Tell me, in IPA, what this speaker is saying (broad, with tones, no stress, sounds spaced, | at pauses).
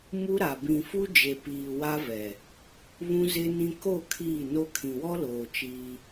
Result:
m u˦ ɾ a˨ b ĩ˨ f u˦ d͡ʒ e˨ p iː˨ w a˦ v ɛ˨ | β ũ˦ z ɪ˦ n ĩ˦ k o˦˨ kʰ iː˦˨ n o˦ kʰ ĩ˨ w ɔ˦ l oː˨ t͡ʃ iː˦